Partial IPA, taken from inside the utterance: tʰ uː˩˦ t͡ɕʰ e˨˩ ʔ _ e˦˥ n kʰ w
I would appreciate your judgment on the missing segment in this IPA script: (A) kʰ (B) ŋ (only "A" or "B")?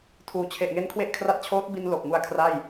B